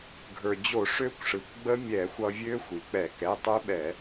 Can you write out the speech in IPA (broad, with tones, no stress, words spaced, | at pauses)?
ɡʱə˞˩ d͡ʑo˧˩˧ʂø˦˥kʷʂɯ˩kʷɡ͡bə˦˥ mʲɛ˧˩˧xʷʌ˧vʲø˦˥ xʷi˩k͡pɛ˧˩˧ kɛ˩˧˩tˤø˦˥ɓɛ˧˩˧